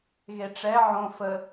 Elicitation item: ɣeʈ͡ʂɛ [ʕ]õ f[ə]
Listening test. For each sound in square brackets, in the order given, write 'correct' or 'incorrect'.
correct, correct

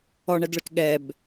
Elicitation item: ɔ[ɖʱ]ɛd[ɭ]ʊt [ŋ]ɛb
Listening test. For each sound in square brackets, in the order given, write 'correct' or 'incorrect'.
incorrect: ɳ, correct, incorrect: ɠ

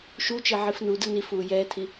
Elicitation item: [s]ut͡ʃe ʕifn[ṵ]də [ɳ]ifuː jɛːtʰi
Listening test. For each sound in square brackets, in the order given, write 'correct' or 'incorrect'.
incorrect: ʃ, incorrect: u, incorrect: n

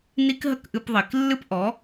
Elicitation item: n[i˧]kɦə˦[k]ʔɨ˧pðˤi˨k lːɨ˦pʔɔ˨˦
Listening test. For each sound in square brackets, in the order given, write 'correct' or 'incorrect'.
incorrect: i˦, correct

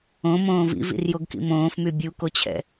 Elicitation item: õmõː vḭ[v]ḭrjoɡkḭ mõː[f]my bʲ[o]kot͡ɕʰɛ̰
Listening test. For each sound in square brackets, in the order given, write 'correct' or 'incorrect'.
correct, correct, incorrect: u

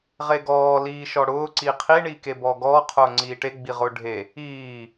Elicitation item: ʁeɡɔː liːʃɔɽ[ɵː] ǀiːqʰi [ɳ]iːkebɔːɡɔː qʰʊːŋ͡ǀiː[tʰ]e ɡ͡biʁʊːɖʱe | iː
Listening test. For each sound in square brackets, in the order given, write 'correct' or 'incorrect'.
incorrect: ʊː, correct, incorrect: ʈ

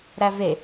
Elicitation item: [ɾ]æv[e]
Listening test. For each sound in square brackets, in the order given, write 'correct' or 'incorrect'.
correct, correct

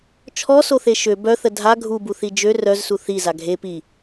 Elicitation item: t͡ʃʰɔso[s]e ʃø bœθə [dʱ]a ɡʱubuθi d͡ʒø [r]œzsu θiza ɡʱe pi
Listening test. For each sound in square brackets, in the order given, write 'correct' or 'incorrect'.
incorrect: θ, correct, correct

